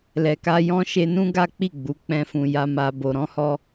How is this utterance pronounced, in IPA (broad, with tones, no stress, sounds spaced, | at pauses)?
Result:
l ɛ˨ k a˧ j ɔ̃˧ ʃ e˧ n ũ˦ ɡ a˦ k͡p i˦˨ ɡ͡b u˨˦ k͡p ɛ̃˦ f ũ˧ j a˧ m a˧ b o˧ ɾ ɔ̃˦ h ɔ˦